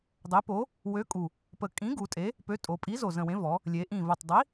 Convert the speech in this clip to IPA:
dˤe˨˥po˨˥ | wø˨˥kʼu˨˩ | pə˨˩kʼĩ˨˥ ɡu˩˧tʼe˨˥ | pø˨˥tʼo˩˧pʼi˨˥ zo˨˩zə̃˨˩wẽ˨˥ vɔ˩˧ | lʲe˩˧ ʔĩ˨˩və˨˩tˤdˤi˨˥

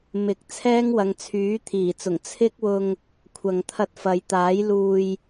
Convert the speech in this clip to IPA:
mɪ˨˥k̚ t͡sʰɛː˥ŋwɐ˨˧ŋt͡sʰyː˨˥ t̪ʰiː˨˩t͡sʊ˨˩ŋ t͡sʰɪ˥k̚wʊ˧ŋ | kʷʰɐ˨ŋt̪ʰɐ˧t̚fɐ˨˧jt̪aː˨˥j luː˨j

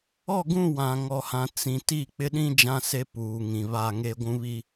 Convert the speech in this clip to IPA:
ɔ˦˨ɡũ˦˨ wã˨ŋɔ˨hã˨ t͡sĩ˨ ti˦˨ k͡pɪ˦ɗĩ˦ d͡ʒã˦se˦ puː˨ŋĩ˨βa˦˨ŋe˦ ɡʷũ˦βi˦

